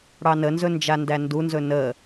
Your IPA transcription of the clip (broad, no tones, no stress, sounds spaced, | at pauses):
ɽ ɑ n ə n z ɵ n d͡ʒ a n d æ n d u n z ɵ n ə